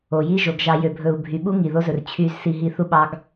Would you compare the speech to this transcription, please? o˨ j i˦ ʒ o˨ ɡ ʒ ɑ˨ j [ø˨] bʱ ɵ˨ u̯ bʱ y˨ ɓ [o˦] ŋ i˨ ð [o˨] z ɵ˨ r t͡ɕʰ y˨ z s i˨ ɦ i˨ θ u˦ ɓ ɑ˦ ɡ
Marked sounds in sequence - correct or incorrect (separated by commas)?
correct, incorrect, incorrect